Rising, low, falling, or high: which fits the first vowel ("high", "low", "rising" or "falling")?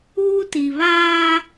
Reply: high